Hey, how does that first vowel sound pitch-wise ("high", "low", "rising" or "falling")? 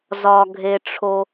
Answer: low